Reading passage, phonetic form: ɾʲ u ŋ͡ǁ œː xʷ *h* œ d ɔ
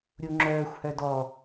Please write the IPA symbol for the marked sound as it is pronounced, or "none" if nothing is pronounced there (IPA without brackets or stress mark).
h